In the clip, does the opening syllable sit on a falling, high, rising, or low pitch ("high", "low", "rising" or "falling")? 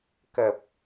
low